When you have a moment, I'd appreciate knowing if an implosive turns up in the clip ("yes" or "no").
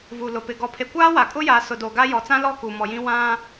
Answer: no